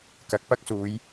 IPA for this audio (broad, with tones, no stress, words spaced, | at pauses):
kɐ˨˥k̚pɐ˥k̚suː˨˧j